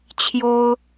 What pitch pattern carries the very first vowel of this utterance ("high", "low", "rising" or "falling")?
high